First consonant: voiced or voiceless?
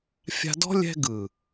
voiceless